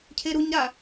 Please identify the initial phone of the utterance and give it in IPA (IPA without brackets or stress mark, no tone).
cʰ